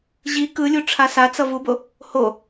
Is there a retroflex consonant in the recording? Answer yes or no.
yes